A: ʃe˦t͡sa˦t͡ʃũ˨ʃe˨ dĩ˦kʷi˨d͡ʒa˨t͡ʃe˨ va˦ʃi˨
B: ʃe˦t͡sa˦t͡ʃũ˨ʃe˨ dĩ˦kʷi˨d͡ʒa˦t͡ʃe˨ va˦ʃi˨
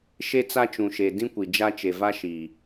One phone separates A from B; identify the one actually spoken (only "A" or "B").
B